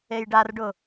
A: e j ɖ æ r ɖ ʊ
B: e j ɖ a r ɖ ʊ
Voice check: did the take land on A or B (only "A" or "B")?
B